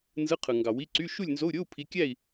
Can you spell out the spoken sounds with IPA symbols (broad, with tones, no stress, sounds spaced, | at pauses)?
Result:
n z ɯ˧˥˧ qʰ ɯ˨ ŋ ɡ ɑ˨ w i˧˥˧ ǀ y˧˥˧ ʃ u˥˨ lʲ n z o˧˥˧ u̯ ɾʲ o˧˥˧ u̯ pʰ i˨˦ kʲ æ˥˨ i̯